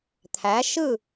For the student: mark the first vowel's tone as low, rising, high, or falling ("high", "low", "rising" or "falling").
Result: rising